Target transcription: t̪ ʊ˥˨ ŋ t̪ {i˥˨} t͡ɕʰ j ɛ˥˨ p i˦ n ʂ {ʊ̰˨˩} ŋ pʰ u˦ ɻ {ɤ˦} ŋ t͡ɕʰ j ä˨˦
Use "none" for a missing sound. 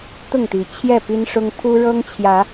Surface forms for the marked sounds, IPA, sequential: i˨˩, ʊ˦, ɤ˦

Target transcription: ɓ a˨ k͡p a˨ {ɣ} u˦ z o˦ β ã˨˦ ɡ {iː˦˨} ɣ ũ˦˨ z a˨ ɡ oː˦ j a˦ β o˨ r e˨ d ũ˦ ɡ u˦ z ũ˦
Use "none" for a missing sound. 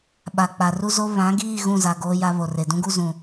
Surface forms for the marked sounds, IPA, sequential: r, iː˦˨

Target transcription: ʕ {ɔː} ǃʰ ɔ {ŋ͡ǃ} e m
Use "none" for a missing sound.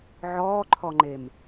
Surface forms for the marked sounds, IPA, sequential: ɔː, ŋ͡ǃ

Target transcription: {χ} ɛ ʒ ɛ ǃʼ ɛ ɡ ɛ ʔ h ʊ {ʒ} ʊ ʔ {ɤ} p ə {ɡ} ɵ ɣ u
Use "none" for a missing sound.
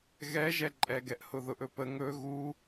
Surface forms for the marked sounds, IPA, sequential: ɣ, ð, ɵ, ŋ

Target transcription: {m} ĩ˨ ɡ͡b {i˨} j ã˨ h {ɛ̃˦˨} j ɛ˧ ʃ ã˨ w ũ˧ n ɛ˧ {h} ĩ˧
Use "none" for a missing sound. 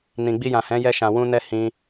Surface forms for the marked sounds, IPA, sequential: n, i˧, ɛ̃˨˦, h

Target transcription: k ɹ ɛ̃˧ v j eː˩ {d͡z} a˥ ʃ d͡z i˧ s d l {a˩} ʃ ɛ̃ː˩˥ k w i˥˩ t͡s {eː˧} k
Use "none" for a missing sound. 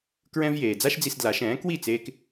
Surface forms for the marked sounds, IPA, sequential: d͡z, a˩˥, eː˧

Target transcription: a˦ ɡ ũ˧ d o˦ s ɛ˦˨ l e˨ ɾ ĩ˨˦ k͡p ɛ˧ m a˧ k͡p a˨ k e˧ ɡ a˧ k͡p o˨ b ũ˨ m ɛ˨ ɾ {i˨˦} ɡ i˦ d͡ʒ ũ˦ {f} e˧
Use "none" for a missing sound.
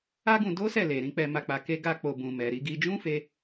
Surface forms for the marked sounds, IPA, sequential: i˨˦, f

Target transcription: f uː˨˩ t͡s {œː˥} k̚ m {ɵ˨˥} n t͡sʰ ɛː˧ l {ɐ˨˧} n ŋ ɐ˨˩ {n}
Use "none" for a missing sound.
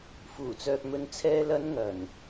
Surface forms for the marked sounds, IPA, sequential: œː˨, ɵ˨˧, ɐ˨˧, n

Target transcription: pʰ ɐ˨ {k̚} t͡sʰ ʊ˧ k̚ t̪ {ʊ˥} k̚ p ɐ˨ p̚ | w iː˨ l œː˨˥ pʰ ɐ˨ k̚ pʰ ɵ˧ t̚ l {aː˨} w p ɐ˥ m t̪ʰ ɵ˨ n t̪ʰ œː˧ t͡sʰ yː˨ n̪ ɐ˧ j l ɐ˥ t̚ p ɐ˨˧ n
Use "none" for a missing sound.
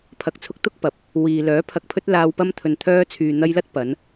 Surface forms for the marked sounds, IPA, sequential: k̚, ʊ˥, aː˧

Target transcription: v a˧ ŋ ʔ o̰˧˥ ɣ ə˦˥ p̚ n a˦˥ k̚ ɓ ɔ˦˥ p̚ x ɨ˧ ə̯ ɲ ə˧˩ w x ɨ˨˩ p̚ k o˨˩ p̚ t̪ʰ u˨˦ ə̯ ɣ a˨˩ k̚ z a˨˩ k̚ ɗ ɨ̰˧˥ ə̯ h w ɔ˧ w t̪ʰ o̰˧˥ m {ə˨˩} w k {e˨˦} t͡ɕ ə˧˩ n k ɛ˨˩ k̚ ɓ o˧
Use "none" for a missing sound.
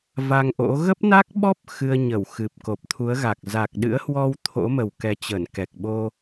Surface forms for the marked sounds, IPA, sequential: ə˨˩, ɛ˨˦

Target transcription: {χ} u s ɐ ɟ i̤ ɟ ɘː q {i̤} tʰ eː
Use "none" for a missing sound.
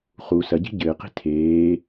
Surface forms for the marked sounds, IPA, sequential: χ, i̤

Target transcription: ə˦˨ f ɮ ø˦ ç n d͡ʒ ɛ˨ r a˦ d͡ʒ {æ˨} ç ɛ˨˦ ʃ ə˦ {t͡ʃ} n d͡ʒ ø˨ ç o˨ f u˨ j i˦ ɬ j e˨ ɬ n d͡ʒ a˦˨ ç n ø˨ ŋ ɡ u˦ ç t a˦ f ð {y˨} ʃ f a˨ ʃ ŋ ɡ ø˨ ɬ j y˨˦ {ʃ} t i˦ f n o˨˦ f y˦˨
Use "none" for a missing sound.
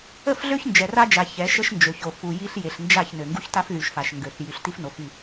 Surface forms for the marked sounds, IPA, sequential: a˨, ʃ, y˨, ɬ

